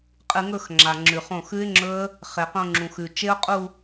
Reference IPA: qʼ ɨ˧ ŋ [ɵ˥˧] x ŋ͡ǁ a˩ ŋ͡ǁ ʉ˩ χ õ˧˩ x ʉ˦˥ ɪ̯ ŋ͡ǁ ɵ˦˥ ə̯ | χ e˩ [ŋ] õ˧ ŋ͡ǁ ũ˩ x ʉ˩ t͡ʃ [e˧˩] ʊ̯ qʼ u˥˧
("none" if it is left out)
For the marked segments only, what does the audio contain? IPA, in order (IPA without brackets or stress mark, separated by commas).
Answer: ɵ˥˧, q, e˦˥